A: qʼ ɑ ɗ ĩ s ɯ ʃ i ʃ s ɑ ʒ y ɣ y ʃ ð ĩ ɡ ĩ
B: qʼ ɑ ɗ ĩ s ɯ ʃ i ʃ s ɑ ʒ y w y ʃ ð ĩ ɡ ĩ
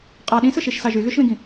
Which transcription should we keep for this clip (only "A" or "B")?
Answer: A